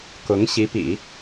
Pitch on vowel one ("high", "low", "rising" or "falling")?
rising